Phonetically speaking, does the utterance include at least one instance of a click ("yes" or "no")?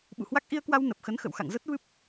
no